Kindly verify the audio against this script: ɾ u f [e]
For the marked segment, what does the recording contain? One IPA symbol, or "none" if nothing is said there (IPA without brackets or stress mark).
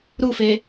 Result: e